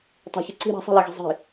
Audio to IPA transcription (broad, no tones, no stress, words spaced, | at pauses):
tˤe̤çɨ ǀi̤ ɾa̤sˤe̤lɛɣi̤ zˤi̤